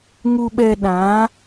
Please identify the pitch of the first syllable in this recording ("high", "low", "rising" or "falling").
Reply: low